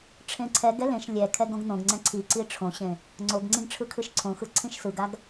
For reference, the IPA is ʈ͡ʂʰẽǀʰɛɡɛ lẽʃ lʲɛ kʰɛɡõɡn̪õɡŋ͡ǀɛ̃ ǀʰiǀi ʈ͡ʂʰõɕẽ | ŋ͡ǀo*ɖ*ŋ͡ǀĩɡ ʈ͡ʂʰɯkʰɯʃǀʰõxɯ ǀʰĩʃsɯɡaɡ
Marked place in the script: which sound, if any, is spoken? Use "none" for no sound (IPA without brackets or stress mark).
ɡ